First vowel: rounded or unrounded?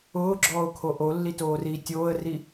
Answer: rounded